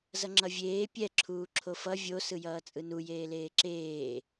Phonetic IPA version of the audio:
z ʌ ŋ͡ǁ ʌ vʲ eː pʲ ɛ ǁʰ uː ǁʰ o f ʌ vʲ o s ɯ j ʌː t͡sʼ ɯ n u j eː l eː ǁ eː

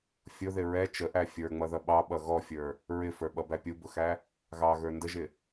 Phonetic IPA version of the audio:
fʲ ʊ ð ɪ ɹ ɛ t͡ʃ ə ʔ æ fʲ ə˞ ŋ͡m ʌ ð ʌ ɓ ɑ ɓ ʌ ɣ ɔ fʲ ə˞ | ɹ ɪ f ə˞ ɓ ʌ b æ pʲ u b ʊ x æ | ɣ ɑ ɣ ə˞ n d ə ʒ ɪ

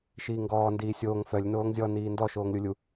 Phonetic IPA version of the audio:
ʃ iː ŋ ɡ ɔː n d iː sʲ oː ŋ f œ lʲ n oː ŋ zʲ ɔ n iː n d ɔ ʃ oː ŋ lʲ u lʲ u

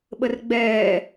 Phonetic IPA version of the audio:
ɓ ə r ɡ͡b ɛː

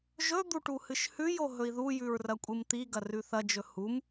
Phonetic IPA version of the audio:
ʒ ɵ d̪ u ʈ u h ɨ ʃ h ʉ j o ɦ ɵ i̯ ð u j ʉ ɹ r ɐ kʷʼ ɨ m t̪ i ɡ ɐ r ʉ θ ɐ d͡ʒ ɵ h u m

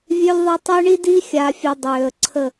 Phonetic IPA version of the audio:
vʲ ø˦ lʲ ðˤ a˦ tˤ œ˦ ɳ i˦ d i˦ xʲ a˨ fʲ e˨ dˤ øː˨ ə̯ ǀʰ ə˦˨

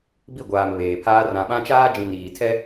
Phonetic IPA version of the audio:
b i˦˨ ɡʷ aː˨ m β eː˨ pʰ aː˦ r ã˨ ɓ ã˦ t͡ʃ aː˦ d͡ʒ ĩ˨ n iː˨ tʰ ɛ˦

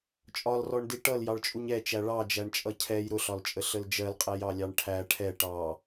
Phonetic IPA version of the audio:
t͡ʃʼ ɒ l r ɔ ɳ d i ʈ ʌ l j ɑ ɭ t͡ʃʼ u ɲ ɛ t͡ʃ æ ɭ ɑ d͡ʒ æ ɳ t͡ʃʼ ʌ cʰ ɛ j ɾ ʊ ɬ ɒ l t͡ʃʼ ə ɬ ə l d͡ʒ ɜ l qʼ æ j ɑ lʲ ɑ ɳ ʈʰ æ ʈʰ ɛ ʈ ɑ

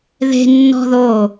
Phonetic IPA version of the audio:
ð e̤ nː ɔ̤ ð o

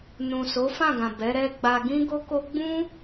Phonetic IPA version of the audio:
n ũ˨ s o˨˦ f ã˦˨ ɡ ã˨ b ɛ˨˦ ɾ ɛ˦ ɡ͡b a˧ ɡ ĩ˦ ɡ o˦ k o˦ ɡ͡b ũ˦

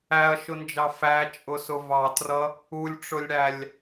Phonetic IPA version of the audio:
æ ɐ̯ ʃ ʊ n d͡ʒ ɑ f æ t͡ʃʼ ʊ s ʊ v ɑ t r ʌ | u lʲ ʈ͡ʂ ʊ lʲ ɽ æ lʲ

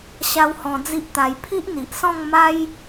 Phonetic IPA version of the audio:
ɕ a˦ w h ɔ̃˧ d͡z i˦ ʔ t̪ a˧ j pʰ i˦ ʔ n̪ i˨ ʔ s ɔ̃˥˧ ŋ m a˦ j

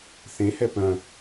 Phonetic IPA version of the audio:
θ ẽ h ɛ p œ̃

